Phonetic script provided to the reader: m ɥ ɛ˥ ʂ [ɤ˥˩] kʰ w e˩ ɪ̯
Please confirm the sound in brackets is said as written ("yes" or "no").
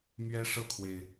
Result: yes